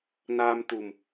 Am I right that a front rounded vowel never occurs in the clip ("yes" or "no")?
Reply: yes